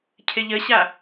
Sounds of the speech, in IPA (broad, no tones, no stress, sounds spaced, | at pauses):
cʰ ɪ ʎ ə ɕ a